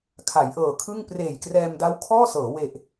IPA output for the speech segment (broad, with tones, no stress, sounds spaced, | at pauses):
kʰ a˩˦ j ʔ ɤː˨˩ kʰ ɯ˥˩ ŋ p r eː˨˩ j k r ɛː˧ m d a˦˥ w kʰ ɔː˥˩ s ɤː˩˦ w e˨˩ ʔ